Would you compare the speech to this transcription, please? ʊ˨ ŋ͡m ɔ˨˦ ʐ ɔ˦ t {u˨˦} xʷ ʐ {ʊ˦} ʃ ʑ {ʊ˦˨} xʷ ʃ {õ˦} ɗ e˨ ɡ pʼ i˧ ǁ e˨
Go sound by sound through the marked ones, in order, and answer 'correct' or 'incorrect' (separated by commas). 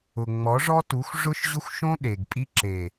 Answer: correct, correct, incorrect, correct